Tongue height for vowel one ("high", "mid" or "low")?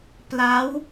low